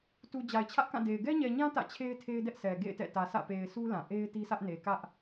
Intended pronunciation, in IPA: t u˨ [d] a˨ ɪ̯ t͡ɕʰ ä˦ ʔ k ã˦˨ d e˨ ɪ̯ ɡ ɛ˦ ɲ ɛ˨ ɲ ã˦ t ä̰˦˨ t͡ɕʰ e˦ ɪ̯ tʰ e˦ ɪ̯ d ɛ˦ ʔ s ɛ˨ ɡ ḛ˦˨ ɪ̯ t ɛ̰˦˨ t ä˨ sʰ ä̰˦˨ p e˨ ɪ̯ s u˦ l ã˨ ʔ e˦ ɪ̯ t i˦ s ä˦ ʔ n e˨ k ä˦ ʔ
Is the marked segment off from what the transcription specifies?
yes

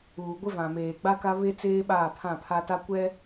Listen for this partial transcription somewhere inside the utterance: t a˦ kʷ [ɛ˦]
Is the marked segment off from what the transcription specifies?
no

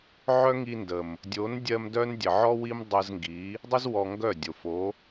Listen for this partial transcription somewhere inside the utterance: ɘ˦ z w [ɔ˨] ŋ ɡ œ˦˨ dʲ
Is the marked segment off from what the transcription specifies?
yes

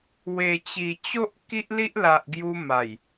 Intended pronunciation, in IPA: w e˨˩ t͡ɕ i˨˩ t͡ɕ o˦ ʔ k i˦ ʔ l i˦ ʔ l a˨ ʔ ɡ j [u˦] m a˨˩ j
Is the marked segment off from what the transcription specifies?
yes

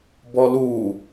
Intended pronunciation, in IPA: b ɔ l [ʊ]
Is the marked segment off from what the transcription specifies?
yes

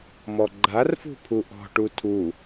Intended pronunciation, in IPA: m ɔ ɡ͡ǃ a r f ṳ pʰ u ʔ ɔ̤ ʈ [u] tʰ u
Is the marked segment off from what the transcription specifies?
no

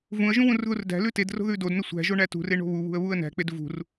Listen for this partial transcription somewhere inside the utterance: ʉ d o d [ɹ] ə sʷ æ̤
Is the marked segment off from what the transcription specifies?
yes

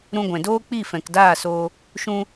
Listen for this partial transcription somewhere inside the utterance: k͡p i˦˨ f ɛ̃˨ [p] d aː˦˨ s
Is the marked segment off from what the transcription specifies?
yes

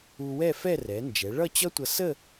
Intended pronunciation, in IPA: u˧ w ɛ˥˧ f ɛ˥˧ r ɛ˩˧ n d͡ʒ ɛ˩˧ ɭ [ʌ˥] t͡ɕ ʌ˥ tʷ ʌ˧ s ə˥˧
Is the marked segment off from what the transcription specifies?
yes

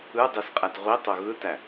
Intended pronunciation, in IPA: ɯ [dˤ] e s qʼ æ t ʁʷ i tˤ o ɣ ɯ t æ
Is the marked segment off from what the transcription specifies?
no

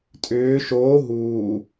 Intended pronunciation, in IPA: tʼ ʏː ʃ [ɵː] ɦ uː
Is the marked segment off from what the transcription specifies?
yes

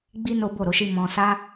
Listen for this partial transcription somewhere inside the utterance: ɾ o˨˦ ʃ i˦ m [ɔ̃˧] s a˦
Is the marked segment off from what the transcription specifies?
no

